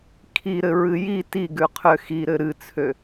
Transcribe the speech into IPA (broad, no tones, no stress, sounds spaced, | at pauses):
kʰ i ɾ ɘ ɹ ɨ j i t i ɡ ʉ qʰ ø x i ɾ ɘ ɾ ɨ t͡sʰ ø